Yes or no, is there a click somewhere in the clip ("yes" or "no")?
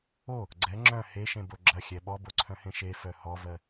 yes